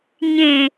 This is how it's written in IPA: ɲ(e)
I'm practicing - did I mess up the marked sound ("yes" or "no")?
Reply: yes